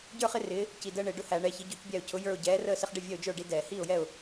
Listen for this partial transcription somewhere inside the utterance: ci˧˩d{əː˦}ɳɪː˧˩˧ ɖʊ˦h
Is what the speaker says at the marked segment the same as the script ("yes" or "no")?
yes